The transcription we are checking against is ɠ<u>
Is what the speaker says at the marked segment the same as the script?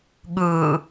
no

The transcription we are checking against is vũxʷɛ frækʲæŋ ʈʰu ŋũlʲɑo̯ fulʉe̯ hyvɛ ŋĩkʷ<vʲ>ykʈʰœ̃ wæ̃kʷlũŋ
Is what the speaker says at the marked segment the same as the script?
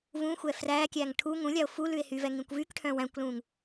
no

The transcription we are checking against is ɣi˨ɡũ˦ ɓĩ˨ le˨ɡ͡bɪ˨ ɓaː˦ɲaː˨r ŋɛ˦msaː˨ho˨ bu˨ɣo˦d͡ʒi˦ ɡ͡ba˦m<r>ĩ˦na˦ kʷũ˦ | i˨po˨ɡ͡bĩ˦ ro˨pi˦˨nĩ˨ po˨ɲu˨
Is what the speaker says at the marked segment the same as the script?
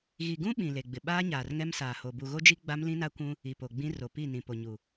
no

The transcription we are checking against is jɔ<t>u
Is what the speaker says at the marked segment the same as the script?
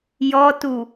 yes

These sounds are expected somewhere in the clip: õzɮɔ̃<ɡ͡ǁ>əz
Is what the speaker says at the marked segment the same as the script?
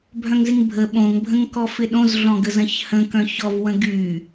no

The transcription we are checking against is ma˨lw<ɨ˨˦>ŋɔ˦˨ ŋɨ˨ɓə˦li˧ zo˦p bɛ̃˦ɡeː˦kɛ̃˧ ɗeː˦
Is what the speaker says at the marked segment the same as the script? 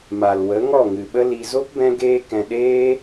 no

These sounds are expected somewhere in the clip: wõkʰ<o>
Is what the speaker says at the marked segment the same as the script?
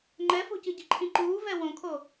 yes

